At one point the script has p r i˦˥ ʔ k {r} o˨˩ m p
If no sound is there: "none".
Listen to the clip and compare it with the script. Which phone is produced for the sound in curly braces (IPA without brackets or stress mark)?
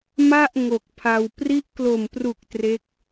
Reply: l